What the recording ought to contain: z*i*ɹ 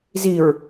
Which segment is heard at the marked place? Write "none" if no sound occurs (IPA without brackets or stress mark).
i